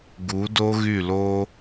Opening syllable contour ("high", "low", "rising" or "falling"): rising